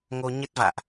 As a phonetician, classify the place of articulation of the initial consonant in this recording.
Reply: velar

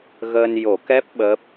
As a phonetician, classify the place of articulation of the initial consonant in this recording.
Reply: velar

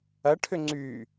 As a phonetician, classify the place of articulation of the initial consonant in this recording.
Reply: retroflex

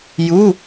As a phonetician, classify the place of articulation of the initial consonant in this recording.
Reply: palatal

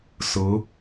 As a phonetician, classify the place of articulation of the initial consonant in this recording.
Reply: alveolar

